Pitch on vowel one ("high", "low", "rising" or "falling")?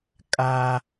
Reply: low